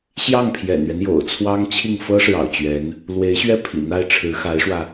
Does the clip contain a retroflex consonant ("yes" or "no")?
yes